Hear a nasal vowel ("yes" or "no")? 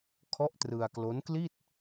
no